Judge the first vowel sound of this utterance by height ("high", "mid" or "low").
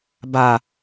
low